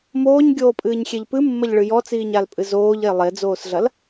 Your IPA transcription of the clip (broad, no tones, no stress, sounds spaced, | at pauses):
m oː ɲ ɡʲ oː pʼ ɨː ɲ xʲ e ʎ p ɨ mː ɐ ʎ ɭ ɨ j ɔ t͡s iː ɲ a l pʼ ɨ z oː ʎ e lˠ e d͡z oː s ɮ ɐ l